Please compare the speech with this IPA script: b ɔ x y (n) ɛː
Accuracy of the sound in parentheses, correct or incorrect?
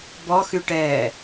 incorrect